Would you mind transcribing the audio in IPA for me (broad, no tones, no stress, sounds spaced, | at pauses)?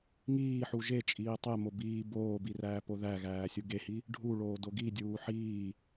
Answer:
ŋ iː ħ u ʒ e t͡ʃʼ iː tˤ e m o b iː b oː b i r æː p o ð æ ɣ æː sʲ u ɡ e h i | ɖʱ u ɭ oː d o ɡ i dʲ uː ħ iː